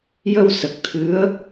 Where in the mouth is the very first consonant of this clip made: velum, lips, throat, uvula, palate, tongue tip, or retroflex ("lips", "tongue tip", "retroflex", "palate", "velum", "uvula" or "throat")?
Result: palate